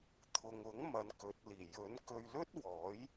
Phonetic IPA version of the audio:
t̪ʰ ʊ˨ ŋ ʊ˨˥ ŋ m ɐ˨˧ n k ɵ˨˥ t̚ l iː˨˩ j ɵ˨˥ n k ɵ˧ ɥ l ɵ˥ t̚ w ɔː˨˥ j

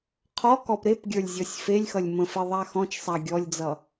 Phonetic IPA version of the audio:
qʰ ɔ k ɔ p ɾ e p ɡʲ ə˞ lʲ zʲ ɔ sʲ f e lʲ x ʌ lʲ m ə̃ f e ðˤ a x ɔ̃ t͡ʃ sˤ a ɡʲ ɔ lʲ d͡z ʌ

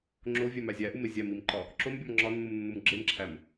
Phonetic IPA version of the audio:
ŋ͡ǁ o vʲ æ m æ zʲ æ ʔ u m e zʲ æ m i m ǃ ɒ | ǁ o m bʲ ɒ m ŋ͡ǁ ɒ nː u m nː u m ɡ͡ǁ e m ǁʰ æ m

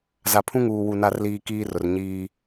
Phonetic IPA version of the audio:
z a˨ pʰ ũ˦ ŋ uː˨ w u˨ n a˨ r l iː˨ k iː˦ r ʊ˨ r ɲ iː˦

